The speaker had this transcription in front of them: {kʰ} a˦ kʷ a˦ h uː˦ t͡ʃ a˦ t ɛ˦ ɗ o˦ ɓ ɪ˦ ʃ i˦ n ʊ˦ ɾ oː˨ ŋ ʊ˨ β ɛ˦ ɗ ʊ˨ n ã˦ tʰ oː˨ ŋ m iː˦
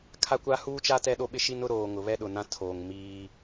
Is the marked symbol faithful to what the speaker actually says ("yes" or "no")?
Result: yes